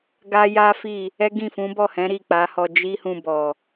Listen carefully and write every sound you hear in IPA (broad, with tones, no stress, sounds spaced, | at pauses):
ɡ a˦ j a˦ f i˦˨ | ɛ˦ ɡ ĩ˦˨ f ũ˨˦ b ɔ˦˨ h ɛ̃˨˦ ɾ i˦˨ k͡p a˨˦ h ɔ˧ d͡ʒ i˦ h ũ˧ b ɔ˨